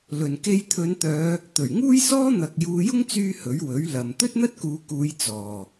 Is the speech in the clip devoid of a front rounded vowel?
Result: no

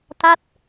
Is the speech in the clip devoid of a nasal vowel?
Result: yes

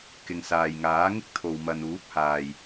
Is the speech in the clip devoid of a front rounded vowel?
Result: yes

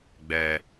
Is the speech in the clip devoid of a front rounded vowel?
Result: yes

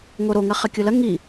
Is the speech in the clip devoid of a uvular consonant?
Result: no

